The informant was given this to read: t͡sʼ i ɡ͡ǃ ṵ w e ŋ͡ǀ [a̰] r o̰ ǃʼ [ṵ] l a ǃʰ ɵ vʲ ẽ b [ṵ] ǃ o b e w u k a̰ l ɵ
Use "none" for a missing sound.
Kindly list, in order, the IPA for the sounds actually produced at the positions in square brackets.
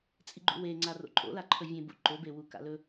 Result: a, o̰, ṵ

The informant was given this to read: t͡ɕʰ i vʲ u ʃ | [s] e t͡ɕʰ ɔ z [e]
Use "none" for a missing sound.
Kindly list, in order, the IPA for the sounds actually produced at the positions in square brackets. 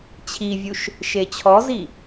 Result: ʃ, i

